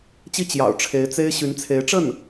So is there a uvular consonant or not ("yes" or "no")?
no